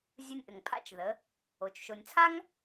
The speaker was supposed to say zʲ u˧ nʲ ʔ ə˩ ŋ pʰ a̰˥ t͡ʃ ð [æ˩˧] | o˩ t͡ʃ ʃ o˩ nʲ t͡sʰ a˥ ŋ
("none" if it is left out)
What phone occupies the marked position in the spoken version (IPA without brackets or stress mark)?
ə˩˧